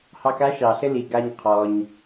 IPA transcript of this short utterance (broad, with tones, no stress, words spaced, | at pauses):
hɑ˧ka˥ʃɑ˩ ɬɘ˥li˩ ɡa˧ɲ qʰɔ˩ɲ